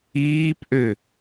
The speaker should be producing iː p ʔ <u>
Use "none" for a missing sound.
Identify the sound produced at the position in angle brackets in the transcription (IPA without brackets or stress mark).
ø